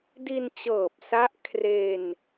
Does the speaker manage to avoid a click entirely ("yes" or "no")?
yes